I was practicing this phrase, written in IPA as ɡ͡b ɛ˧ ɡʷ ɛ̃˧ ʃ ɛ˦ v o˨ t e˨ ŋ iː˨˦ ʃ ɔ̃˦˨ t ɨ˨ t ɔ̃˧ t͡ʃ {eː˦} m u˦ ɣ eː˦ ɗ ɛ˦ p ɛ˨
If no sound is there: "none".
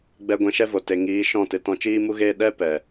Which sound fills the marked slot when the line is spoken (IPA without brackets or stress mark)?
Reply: iː˦